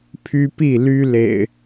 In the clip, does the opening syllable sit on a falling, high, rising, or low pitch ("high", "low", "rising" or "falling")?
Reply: high